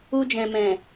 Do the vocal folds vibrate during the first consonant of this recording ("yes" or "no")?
yes